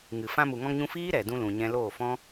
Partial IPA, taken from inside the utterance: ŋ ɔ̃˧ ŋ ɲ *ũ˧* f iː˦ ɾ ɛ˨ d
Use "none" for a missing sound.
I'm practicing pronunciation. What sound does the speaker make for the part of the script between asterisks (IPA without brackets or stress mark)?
ũ˧